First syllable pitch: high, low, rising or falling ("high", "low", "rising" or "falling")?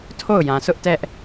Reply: falling